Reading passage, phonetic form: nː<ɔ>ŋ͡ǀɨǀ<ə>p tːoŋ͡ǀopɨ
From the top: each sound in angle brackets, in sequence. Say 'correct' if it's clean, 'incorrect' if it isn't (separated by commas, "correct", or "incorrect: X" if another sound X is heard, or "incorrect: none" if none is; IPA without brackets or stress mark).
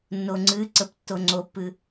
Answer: incorrect: o, correct